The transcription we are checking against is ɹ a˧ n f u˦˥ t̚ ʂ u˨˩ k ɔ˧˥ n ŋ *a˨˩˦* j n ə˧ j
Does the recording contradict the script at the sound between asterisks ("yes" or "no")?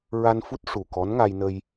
yes